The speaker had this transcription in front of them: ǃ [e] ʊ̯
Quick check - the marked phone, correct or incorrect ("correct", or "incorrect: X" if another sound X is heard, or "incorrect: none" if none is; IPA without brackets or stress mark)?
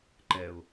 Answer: incorrect: ɛ